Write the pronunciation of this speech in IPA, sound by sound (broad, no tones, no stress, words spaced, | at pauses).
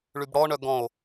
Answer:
ɭybɽɔɳœ ɡɔ̃o̯